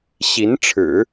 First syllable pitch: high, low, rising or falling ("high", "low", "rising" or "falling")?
rising